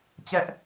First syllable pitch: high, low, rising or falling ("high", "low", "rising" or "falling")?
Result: high